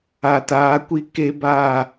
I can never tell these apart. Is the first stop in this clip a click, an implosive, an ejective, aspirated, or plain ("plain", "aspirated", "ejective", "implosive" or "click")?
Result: plain